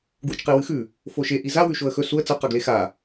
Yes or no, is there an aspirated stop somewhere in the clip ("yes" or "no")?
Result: no